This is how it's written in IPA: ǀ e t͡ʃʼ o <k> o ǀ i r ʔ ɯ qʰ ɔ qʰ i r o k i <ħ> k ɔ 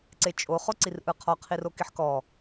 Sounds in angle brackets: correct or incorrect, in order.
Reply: incorrect, correct

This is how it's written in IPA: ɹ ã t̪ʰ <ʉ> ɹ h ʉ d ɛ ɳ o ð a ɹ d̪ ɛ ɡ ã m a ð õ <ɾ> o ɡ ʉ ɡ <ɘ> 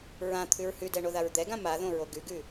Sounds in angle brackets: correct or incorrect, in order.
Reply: correct, incorrect, incorrect

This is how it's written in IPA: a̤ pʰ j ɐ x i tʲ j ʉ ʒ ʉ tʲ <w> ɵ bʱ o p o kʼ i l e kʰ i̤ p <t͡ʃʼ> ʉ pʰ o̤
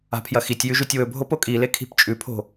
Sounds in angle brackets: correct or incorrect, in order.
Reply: correct, correct

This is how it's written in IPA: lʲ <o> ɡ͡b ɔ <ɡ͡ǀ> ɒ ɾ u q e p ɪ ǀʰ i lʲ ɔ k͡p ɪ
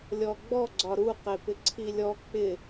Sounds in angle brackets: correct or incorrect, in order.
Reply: incorrect, correct

